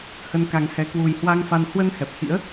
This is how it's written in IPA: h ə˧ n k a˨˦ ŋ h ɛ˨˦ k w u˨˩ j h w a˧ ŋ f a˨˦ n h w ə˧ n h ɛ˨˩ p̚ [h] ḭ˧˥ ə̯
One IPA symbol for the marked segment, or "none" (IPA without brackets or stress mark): h